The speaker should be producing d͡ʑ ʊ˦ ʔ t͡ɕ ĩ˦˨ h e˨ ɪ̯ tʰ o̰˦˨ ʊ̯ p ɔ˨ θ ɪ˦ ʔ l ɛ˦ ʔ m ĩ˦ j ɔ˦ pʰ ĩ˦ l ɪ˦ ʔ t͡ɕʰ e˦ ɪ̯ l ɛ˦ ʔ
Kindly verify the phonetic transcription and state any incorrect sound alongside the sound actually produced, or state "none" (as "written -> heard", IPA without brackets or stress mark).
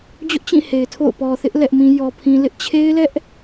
none